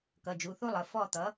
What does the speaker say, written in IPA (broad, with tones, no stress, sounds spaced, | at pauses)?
k ʌ˩˧˩ d͡ʒ u˩˧˩ θ u˥ lˠ ə˩˧˩ f ɔ˦˨ t̪ ʌ˩˥